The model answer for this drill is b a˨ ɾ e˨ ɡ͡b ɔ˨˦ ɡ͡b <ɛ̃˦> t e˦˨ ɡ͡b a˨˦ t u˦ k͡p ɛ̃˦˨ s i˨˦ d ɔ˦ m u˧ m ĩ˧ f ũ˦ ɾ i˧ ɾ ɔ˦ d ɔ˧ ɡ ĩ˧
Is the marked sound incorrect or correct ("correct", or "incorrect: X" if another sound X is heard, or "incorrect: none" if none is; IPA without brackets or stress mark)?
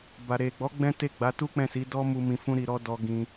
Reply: correct